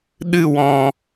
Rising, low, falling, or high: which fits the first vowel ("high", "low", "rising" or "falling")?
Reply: falling